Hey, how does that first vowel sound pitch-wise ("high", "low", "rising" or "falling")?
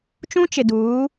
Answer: high